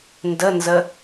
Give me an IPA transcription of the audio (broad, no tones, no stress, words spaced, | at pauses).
ndənzə